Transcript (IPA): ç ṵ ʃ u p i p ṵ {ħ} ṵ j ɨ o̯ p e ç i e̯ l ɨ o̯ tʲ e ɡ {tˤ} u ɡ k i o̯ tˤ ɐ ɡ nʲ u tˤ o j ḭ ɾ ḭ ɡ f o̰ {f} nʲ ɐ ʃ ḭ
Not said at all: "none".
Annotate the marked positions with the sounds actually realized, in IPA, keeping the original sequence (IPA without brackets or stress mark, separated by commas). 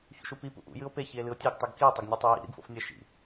ʔ, tˤ, f